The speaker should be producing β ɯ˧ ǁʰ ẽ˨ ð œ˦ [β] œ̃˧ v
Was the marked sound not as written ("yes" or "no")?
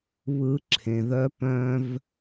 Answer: yes